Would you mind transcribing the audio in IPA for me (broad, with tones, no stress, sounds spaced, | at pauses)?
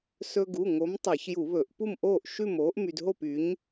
s ɵ˧ ɡ u˩˧˩ ŋ o˨˥ m tˤ e˧˩˧ ç j u˧˩˧ β ɵ˧˩˧ ʔ p u˥˨ m ʔ oː˥˨ ʔ ʃ ʉ˥˨ m oː˨˥ ʔ m y˧ d ɦ o˥˨ p y˨˥ ɲ